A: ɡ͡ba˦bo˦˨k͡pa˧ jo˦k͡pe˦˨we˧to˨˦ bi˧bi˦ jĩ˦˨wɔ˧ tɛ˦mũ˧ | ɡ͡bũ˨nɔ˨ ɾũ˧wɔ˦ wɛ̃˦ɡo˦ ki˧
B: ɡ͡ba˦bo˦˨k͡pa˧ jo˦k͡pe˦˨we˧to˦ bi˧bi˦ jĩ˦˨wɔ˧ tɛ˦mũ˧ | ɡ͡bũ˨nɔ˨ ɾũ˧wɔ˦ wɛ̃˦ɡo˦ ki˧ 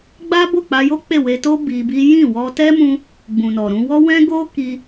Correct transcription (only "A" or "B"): B